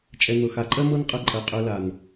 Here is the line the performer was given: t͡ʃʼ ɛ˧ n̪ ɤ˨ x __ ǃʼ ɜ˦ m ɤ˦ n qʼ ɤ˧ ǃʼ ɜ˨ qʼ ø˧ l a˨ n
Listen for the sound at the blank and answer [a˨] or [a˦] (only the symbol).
a˨